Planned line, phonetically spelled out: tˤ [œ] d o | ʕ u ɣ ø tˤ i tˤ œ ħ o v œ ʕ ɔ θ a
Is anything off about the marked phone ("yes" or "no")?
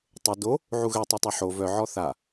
yes